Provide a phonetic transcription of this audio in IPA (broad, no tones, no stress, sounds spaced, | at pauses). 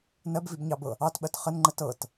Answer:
n ɜ b v i b ɲ ɑ b ɤ | ɑ t ɓ ɜ t χ ə n ŋ͡ǃ ə t ɤ t